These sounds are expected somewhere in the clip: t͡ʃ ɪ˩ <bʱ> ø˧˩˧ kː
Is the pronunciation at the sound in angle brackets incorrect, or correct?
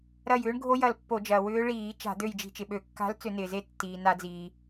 incorrect